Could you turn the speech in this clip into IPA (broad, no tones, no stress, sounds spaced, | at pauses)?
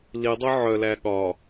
l i dˤ œ ʕ œ l æ ɠ ɒ